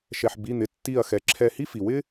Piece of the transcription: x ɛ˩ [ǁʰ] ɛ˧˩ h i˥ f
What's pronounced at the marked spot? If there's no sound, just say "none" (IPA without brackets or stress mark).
ǁʰ